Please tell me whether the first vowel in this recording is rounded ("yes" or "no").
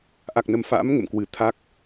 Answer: no